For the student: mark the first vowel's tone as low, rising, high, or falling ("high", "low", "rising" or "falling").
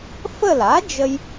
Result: falling